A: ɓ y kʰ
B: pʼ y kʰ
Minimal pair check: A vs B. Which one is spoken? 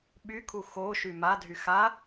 A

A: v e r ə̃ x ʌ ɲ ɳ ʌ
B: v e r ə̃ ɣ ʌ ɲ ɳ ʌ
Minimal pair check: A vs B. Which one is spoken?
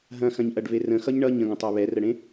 A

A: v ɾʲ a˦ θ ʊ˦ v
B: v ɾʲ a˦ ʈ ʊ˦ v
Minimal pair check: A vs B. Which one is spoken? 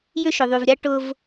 B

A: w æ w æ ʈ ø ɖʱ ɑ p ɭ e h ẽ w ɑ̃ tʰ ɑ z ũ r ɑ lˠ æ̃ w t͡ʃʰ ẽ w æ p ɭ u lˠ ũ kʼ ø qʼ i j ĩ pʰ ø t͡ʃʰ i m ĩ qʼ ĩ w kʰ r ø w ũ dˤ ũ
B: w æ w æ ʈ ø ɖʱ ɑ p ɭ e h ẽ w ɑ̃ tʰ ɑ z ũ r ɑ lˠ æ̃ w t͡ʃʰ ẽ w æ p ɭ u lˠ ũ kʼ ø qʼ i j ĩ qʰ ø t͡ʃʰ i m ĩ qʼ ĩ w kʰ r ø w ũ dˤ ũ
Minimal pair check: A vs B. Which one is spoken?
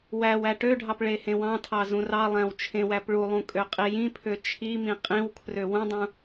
A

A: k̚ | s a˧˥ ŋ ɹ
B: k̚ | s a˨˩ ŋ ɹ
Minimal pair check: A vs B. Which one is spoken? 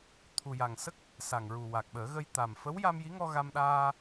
B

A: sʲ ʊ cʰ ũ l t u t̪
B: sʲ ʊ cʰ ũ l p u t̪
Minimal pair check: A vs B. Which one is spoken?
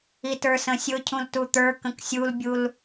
A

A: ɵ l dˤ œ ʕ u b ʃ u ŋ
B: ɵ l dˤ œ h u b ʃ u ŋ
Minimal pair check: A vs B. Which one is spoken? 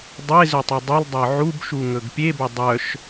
A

